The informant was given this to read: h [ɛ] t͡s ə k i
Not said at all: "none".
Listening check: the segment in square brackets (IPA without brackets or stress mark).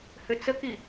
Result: ʏ